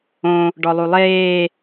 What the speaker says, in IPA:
õ | ɖɔlˠulˠeː

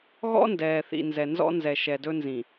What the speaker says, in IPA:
ɣɔ̰˦ndɛː˨θḭ˨ nzɛ˨nzɔ̰˦nzɛ˨ ʃɛ˨dɵ˦nzĩ˨

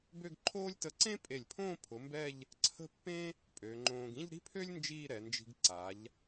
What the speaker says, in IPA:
bø˥˧ɡǃʰoː˥lʲ tə˧ǀẽ˥pʼe˧˩lʲpʰõː˥˧ pʰʊ˩˧ mbɛ˥˧ʎ | ǀʰə̤˥˧pːẽ˥ | pʼø˩˧ŋ͡ǃõː˧ɡ ĩ˥˧ʎɾi̤˥pʰø˥lʲ nd͡ʒiː˥˧ɾɛ˩˧nd͡ʒi̤˧ɡ ǀa˩˧ʎ

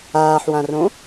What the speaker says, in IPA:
aːħwãrõ

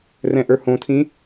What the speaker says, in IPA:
rɛ̃ʔə˞hõtʰĩ

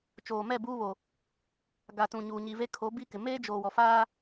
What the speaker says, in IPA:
t͡ʃoː˨mɛ˦˨ buː˦βo˨ | ɡa˨tũ˨ɲuː˨ ɲi˨ve˦ kʰo˨˦ bi˦kɪ˨ meː˦d͡ʒoː˨wɔ˨faː˦

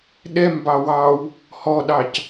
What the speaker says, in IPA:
ɗɛm bɑwɑw | hɔɗɑc

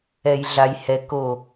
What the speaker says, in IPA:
ɛ˨jɮa˨jhɛ˨ ko˨

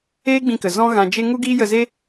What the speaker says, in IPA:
eː˦ɡ͡bĩ˧kə˨ zɔ̃˦ɣã˧d͡ʒe˦ ŋu˦ɡiː˦jə˧ze˦

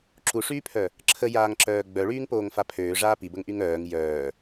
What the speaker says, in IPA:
ǁuʂyːpʰœ | ǁʰəjaːŋǁœː ɡ͡bœɭyːŋpoːŋfa pʰøːʐaː pibəŋʔyŋ œːŋ jœː

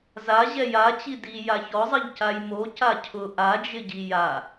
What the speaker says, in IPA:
za ʑɛjat͡ɕi di jaçɔzˤɪʎ cajmo cacʰʊ ʔad͡ʒɪɟi ja

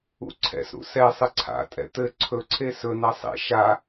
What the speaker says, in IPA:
ṵǀʰɛ̰sɾṵ sɛ sˤɘǀʰa̰tʼɛ̰ t̪ɘ ǀʰɵǀʰe sɵna sˤḛ ʃa

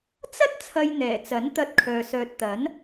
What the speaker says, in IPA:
t͡sɐ˥t̚ t͡sʰɐ˧jn̪ɛː˨˩t͡sɐ˨˥n t̪ɐ˧t̚kʰœː˨ sœː˨t̚t̪ɐ˨˥n

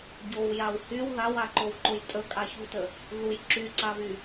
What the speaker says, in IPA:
ɟowjaw hyw ðawaǃowǃoj tʼəkʼaçutə | ðuj ǁyǀaβy

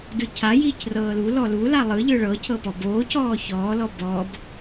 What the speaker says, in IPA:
dɯcʰa jiːcrɤːlu lɔlu lalˠɯ ʎɯɭɤ cʰɤpɔboː cɔːçɔː lɔbɔb

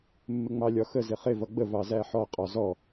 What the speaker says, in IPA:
mːɪŋ͡mɑlʲɒxə zɪχɪ vʌɡ͡bə vɑzæħɔ qʼɒzɔ

